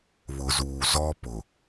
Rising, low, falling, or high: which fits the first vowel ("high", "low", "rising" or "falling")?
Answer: low